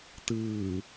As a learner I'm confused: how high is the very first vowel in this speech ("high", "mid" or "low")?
high